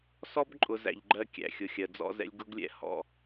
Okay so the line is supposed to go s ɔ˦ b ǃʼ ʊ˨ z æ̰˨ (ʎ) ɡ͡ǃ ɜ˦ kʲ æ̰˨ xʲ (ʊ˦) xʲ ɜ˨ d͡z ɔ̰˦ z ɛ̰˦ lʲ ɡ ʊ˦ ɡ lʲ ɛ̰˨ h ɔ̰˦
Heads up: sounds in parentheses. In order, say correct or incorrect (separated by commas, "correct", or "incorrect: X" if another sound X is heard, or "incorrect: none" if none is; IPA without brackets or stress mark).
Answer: correct, incorrect: ʊ˨